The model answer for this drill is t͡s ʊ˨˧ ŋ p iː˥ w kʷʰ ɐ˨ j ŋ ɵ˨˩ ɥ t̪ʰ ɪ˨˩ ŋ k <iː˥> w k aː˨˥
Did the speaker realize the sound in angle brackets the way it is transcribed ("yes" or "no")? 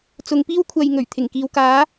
no